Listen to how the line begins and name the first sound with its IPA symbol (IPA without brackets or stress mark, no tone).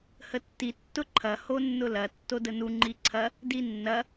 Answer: h